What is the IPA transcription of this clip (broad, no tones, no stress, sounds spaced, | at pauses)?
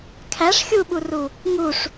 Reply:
kʰ æ ʂ xʲ u ɓ u r u | ŋ u ʂ